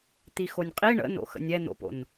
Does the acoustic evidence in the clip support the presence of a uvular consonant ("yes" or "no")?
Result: yes